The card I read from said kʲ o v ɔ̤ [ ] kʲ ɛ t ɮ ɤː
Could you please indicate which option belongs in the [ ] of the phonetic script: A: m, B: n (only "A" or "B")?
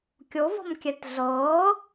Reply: A